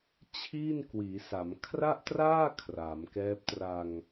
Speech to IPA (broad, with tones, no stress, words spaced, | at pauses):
t͡ɕʰiː˥˩n kwiː˩˦sa˩˦m kʰra˥˩ʔtraː˥˩ kʰra˩˦mkɛː˦˥p̚ tra˧ŋ